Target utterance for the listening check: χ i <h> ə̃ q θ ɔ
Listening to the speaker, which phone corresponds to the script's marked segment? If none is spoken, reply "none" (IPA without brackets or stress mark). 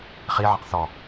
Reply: ʕ